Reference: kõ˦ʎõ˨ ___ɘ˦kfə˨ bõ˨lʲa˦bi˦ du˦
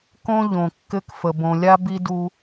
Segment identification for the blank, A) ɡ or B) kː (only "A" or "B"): B